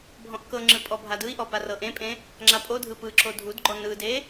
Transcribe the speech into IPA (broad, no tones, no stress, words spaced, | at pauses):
bʱɔ̃ʔkɤŋ͡ǁɯ pʼɔbʱadɯi̯ʔɔ parɤʔẽpʼẽ | ŋ͡ǁapʼodʱɯ pɯǁo dʱudɡ͡ǃɔ nɯde